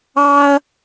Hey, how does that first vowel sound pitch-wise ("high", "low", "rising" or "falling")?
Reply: high